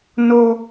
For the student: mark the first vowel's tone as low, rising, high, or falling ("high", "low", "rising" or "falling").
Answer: high